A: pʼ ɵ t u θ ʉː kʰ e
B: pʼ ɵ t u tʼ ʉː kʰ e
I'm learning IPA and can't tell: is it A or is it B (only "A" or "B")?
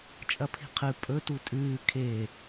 B